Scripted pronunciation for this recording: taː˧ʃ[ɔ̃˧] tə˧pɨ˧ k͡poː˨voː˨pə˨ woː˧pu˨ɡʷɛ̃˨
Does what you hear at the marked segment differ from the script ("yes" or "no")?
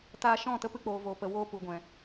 yes